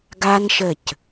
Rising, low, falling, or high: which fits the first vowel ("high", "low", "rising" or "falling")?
high